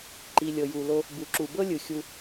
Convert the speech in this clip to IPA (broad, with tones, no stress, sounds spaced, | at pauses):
ǃ i˨ lʲ ɤ˨ j u˨ l o˧ | b u˨ ǁ u˨ b ɤ˦ lʲ ɯ˨ xʲ u˧